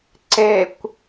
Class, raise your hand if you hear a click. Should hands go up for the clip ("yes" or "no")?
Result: yes